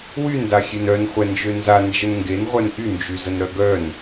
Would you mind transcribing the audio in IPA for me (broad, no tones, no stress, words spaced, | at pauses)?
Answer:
wyn daxʲenœn χʷɛnd͡ʒønza nd͡ʒənŋɡen ʁʷœnʔy nd͡ʒyzənɾœɡœn